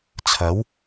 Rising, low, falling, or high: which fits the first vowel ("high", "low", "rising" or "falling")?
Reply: rising